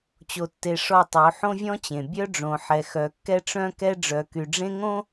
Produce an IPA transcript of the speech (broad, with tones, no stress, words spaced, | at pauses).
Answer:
t͡ɕo˨tːe˨ ʂɔ˦˨tˤo˨˦ ħõ˦vʲɔ̃˦t͡ɕẽ˨ bʲœ˦ɖ͡ʐõ˨ħɛ˨ xœ˨kːɛ˦ ʈ͡ʂœ̃˦kɛ˦ ɖ͡ʐœ˨ky˨ɖ͡ʐẽ˦ŋõ˦